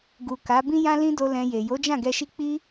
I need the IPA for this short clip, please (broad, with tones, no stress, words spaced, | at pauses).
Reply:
ɡu˨ka˨˦ bĩ˦jã˦ lĩ˦do˧ lɛ̃˧je˨ jo˨˦d͡ʒã˦˨ɡɛ˧ʃi˦ k͡pi˦